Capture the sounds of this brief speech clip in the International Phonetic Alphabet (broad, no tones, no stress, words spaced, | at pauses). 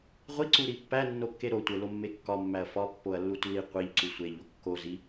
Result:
ʁʷiǀuɾi pːænːokːe ɾotʷelomːe kːɒmːæɐ̯ fɒpːoɐ̯lːut li qʷiʎǀu sʷeʎo kːo zi